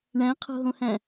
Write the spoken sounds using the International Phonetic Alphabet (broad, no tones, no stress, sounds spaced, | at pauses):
ɳ æ̃ qʰ o̤ ɦ õ h æ̃